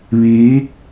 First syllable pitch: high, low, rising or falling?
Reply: rising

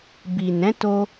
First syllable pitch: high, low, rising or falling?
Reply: low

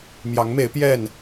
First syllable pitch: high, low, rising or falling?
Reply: rising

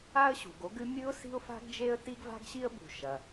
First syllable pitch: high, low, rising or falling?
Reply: high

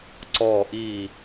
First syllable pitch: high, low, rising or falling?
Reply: low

